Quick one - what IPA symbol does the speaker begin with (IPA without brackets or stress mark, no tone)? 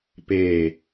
p